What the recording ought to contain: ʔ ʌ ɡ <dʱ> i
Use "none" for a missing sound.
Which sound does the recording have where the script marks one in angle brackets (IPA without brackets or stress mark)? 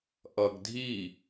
dʱ